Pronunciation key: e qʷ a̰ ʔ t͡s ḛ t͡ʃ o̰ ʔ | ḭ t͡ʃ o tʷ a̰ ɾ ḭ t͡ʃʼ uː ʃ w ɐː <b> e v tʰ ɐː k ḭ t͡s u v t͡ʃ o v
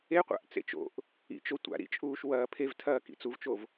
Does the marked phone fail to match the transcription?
yes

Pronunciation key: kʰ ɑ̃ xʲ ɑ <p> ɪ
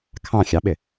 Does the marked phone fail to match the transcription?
yes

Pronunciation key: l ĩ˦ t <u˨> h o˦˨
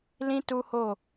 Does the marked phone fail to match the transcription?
yes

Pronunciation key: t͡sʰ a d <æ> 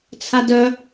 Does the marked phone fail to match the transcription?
yes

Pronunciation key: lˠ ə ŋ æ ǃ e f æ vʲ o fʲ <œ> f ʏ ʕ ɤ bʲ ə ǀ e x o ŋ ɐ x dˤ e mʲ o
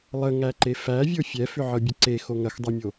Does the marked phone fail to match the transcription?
yes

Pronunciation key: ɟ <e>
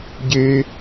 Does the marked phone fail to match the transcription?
no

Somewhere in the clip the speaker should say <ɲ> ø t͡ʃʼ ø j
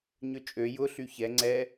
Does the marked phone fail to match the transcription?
no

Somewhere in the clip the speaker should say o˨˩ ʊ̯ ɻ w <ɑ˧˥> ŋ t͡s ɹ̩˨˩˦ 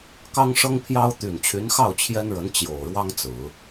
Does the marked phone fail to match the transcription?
yes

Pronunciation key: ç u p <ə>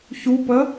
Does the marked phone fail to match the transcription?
no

